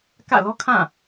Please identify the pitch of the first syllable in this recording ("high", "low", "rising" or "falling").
falling